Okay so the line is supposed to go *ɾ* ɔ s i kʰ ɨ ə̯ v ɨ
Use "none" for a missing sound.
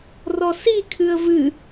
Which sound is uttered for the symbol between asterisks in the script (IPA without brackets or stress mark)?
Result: r